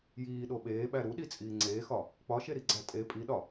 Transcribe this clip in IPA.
j iː ɗ o ɓ eː ɓ æ ɾ u ɗ i t͡sʼ iː ŋ͡ǀ eː x ɒ | k͡p ɒ ʃ e ɾ i ɡ͡ǀ æ tʼ e pʼ i ɗ ɒ

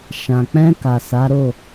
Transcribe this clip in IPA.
ʃ ã˨ k͡p ɛ̃˧ k a˨ s a˨˦ ɾ o˦˨

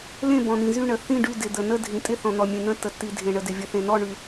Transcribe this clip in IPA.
l ẽ˥˨ b ɔ̃˨ n̪ ĩ˨ z y˥˨ ɳ ə˨ θ ĩ˥˨ ɖ y˥˨ d ɪ˨ d̪ ə˨ n ə˥˨ dʱ ĩ˨ tʼ ɪ˥˨ θ ɔ̃˨ n̪ ɔ˨ mʲ ẽ˨ n̪ ə̃˥˨ tː ə˨ tː i˨ dʱ ẽ˨ ɳ ə˨ d ɪ˨ vʲ ə˨ θ ẽ˨ n ɔ˥˨ ɳ y˨

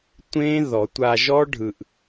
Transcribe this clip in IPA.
tʷ ẽ˦˥ ð ɔ˨˩˦ tʷ a˧ ʒ ɔ˦˥ ɖʱ ɯ˧ ʔ

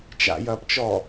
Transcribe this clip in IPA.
t͡ʃ a̰ j ɐː p t͡ʃ ɔ

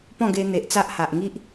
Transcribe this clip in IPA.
p ɔ̃˥˧ ɡ e˧ n̪ e˨ ʔ t͡s a˦ ʔ h a˨ ʔ ŋ i˦ ʔ

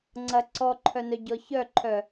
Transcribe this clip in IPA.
ŋ͡ǀ ɐ ǀ ɔ ǃʰ œ n œ ɟ ɔ ç œ ǃʰ œ

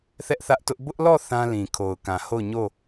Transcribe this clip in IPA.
θ ɛ˦ ʔ θ ä˦ ʔ t ʊ˦ ʔ b ʊ˦ ʔ l ɔ˦˨ θ ã˦ l ĩ˨ kʰ o˨ ʊ̯ k ã˨ h o˦˨ ʊ̯ ɲ o˦˨

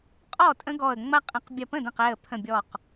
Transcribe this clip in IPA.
qʼ ɔ˥˩ tʼ ə̃˦ ɡ ɔ˧˩ ə̯ ŋ͡m ɐ˦ qʼ ə̃˧˩˧ q bʲ ɐ˧˩ p ə̃˥˩ d ə̃˧˩ q ɛ˧˩ ə̯ pʰ ə̃˧˩ bʲ ɔ˧˩ q

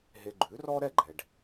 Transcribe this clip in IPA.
ɦ e˧ ɡ͡ǃ ʉ˩˥ r ɔ˥ ɾ ɛ˥˩ ɡ͡ǃ ɛ˩ ɖ

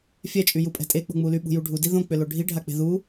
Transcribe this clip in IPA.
fʲ ɛ t͡ʃʼ y j u pʼ ɛ̤ tʼ e k͡p o̤ ŋ͡m u l y ɓ ṳ j u ɖʱ u d i ð õ k͡p ʏ l o ɖʱ i ɖʱ a k͡p e̤ ð u

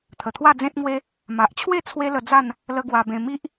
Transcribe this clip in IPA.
t̪ʰ ə˨˩ t̪ʰ w a˥˧ d͡z ẽ˦ t̚ ŋ w e˦ | m a˨ ʔ t͡ɕʰ w e˥˧ t͡sʰ w e˦ l ə˧ d͡z a˥˧ n | l ə˦ ɡ w a˧ b ẽ˧ m i˦ ʔ

